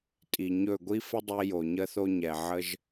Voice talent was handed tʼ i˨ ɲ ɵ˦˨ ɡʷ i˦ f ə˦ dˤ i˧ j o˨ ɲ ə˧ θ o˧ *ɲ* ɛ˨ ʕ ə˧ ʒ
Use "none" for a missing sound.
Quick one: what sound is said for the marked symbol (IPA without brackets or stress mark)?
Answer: ɲ